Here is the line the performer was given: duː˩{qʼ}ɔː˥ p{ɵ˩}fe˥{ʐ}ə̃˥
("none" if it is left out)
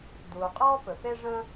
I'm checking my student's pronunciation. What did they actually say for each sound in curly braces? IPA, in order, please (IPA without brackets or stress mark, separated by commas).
qʼ, ɵ˩, ʐ